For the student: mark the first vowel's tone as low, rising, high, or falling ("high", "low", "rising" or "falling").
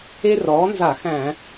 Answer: high